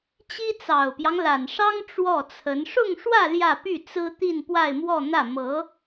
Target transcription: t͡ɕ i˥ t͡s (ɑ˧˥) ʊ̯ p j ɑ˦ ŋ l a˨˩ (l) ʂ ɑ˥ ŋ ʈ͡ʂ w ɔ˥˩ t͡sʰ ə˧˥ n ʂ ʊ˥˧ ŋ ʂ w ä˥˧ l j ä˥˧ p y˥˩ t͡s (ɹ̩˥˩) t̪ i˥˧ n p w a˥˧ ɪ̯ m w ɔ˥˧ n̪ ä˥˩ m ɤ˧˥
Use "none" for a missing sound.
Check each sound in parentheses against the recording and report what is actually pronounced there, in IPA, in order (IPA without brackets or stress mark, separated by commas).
ɑ˨˩, n, ɹ̩˥